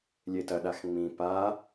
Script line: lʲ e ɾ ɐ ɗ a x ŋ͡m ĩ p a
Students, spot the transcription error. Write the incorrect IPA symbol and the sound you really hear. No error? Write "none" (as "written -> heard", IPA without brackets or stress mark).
ɾ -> t